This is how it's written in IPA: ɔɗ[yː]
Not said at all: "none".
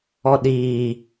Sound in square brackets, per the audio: iː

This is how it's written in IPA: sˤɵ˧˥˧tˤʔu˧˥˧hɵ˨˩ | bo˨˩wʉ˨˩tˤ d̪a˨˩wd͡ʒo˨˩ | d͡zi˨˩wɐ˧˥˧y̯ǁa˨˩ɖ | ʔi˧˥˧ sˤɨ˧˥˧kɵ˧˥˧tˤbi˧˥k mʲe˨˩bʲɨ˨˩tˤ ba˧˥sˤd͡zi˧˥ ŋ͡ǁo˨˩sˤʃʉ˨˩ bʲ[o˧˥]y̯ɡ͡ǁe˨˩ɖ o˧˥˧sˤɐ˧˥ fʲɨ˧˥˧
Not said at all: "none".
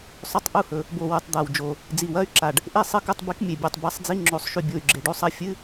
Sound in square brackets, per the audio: o˨˩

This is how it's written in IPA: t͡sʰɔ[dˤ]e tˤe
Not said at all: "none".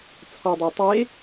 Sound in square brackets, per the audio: dˤ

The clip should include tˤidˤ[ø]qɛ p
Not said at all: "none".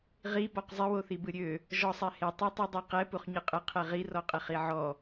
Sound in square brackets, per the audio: ɛ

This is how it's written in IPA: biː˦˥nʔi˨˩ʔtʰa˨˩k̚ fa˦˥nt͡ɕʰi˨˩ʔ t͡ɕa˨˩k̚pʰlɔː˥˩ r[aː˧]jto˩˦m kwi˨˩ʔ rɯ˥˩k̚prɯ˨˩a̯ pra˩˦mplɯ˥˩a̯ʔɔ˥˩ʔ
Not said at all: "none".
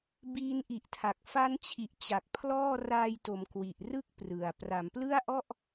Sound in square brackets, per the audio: aː˧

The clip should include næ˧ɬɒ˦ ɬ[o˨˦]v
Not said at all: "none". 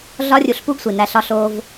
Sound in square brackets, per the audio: o˦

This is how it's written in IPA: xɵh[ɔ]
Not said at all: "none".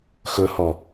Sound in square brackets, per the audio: ɔ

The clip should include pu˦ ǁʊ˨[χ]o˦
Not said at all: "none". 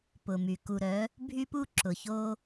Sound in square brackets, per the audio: ç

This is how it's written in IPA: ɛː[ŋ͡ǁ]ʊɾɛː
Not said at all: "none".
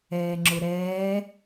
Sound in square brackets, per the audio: ŋ͡ǁ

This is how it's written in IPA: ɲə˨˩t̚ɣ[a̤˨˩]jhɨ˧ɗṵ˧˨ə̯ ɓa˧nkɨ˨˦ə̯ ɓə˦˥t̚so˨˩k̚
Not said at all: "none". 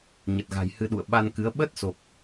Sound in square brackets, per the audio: a̤˨˩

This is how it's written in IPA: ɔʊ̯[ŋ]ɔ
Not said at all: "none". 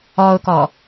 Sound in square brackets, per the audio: k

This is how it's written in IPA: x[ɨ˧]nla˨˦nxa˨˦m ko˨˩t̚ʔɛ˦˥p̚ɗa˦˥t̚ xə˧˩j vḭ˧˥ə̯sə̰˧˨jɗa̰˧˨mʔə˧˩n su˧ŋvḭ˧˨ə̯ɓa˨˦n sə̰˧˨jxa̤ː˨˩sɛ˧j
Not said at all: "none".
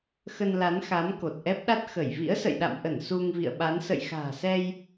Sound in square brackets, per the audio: ə˧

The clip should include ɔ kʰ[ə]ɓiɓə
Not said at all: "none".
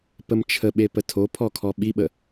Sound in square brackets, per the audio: ɔ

